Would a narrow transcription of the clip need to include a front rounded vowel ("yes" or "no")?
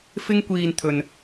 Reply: no